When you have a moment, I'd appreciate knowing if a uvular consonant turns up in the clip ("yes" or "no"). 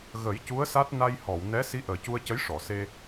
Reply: no